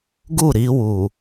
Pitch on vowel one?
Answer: falling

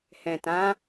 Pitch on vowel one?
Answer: low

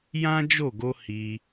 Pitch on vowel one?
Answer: high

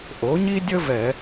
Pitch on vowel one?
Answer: rising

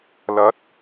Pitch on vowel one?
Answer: rising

